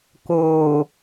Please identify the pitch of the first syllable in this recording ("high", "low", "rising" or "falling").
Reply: low